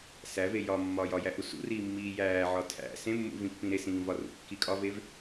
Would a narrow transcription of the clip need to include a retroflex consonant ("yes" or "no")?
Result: no